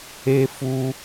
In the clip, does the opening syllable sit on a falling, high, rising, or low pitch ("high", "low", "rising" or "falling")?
high